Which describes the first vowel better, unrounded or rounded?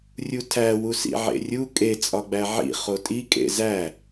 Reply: rounded